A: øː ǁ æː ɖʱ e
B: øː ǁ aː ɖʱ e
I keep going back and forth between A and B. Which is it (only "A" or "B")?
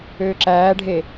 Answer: A